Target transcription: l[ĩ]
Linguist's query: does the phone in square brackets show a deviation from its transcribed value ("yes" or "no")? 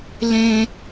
yes